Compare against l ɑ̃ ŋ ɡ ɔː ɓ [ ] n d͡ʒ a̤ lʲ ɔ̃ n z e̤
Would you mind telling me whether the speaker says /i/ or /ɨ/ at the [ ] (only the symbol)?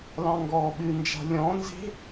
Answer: ɨ